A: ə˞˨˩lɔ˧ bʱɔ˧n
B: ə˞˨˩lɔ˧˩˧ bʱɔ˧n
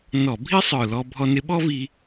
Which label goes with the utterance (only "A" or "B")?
A